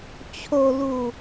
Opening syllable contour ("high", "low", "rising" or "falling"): low